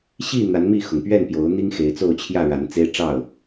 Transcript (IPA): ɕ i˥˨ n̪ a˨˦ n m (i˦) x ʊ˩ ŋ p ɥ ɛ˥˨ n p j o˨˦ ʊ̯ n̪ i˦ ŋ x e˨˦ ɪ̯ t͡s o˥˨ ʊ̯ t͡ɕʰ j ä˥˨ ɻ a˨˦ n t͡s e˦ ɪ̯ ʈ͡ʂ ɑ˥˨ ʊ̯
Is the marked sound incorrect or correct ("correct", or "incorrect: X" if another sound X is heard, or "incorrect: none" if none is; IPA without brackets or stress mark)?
incorrect: i˥˨